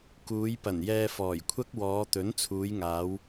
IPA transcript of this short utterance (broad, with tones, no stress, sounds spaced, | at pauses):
k uː˨˧ j p ɐ˨˩ n j ɛː˧ f ɔː˨˩ j kʷʰ ɐ˥ k̚ w ɔː˨˧ t̪ ɵ˨˥ n t͡sʰ uː˨˧ j ŋ aː˨˧ w